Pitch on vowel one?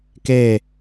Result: falling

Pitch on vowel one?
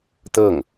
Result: falling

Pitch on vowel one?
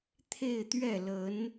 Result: falling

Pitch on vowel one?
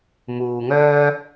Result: low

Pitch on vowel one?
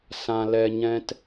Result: low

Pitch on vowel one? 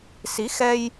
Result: rising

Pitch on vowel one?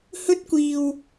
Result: high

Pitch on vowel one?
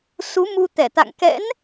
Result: rising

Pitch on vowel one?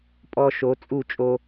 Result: high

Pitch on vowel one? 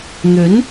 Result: rising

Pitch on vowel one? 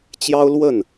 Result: high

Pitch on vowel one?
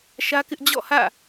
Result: high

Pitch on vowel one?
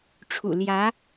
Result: low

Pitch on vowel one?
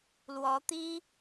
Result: rising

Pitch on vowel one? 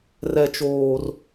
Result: high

